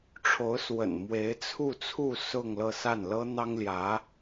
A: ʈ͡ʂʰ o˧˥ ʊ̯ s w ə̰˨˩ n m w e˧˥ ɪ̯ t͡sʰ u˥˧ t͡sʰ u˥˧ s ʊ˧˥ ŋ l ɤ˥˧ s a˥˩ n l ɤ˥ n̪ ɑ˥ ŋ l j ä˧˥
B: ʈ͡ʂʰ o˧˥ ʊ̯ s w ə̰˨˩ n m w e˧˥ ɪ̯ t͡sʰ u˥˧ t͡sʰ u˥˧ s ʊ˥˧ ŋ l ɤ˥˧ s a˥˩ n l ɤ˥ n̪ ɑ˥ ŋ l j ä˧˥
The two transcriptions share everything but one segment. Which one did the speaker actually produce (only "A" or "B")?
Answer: B